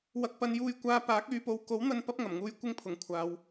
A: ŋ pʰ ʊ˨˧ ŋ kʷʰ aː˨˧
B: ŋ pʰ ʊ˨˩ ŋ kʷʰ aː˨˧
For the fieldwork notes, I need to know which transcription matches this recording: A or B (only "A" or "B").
B